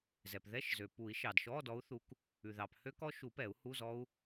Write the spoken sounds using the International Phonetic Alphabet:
z ɛ˩ p ð ɛ˧˥˧ ʃ z ø˩ p u˨˩˦ i̯ ʃ ɑ˩ d ʃ ɔ˧˥˧ d ɔ˨˦ u̯ θ u˨˦ k | ʉ˩ ð ɑ˩ p h ø˦˥ k ɔ˦˥ ʃ u˨˩˦ p ɛ˨˩˦ u̯ h u˧˥˧ z ɔ˦˥ u̯

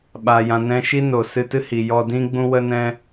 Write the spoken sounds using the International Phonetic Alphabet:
ɓ a˧ j ã˧ n ɛ̃˦ ʃ i˦ n o˨ s ɨ˧ t ɨ˦ h i˨ j ɔ˧ d ĩ˦ ɡ͡b ũ˦ w ə˦ n ɛ̃˦

